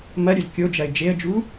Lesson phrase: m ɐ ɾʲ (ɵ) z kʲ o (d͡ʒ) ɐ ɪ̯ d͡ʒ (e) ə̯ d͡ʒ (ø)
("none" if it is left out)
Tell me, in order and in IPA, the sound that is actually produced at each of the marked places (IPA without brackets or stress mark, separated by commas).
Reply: ɵ, d͡ʒ, e, u